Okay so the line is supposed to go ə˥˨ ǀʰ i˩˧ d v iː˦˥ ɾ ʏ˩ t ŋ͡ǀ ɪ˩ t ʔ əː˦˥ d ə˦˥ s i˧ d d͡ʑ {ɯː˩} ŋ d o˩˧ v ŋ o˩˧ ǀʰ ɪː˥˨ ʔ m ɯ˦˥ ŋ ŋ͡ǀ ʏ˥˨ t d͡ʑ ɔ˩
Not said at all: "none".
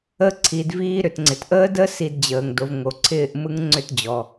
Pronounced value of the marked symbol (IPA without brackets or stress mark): əː˩